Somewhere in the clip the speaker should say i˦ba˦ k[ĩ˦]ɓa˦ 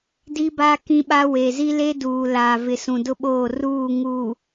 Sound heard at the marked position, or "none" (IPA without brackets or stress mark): ĩ˦